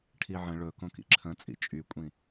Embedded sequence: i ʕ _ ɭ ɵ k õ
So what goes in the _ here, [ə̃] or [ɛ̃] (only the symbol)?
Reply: ə̃